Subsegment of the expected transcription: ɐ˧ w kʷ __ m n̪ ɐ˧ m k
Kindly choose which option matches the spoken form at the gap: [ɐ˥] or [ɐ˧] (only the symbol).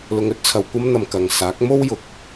ɐ˥